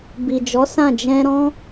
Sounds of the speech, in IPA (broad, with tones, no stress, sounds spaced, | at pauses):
b i˨ d͡ʒ ɔ˨˦ s ã˦˨ d͡ʒ ɛ̃˧ ɾ ɔ̃˦